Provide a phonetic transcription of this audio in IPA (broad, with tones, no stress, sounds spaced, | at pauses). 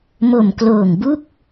m o˨˩ m k l oː˨˩ ŋ b u˥˩ k̚